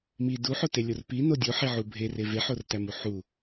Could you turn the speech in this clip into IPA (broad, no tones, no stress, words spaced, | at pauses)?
mi duħotelʲor pino dʲoħiʕu bʱere veħortæmu ħu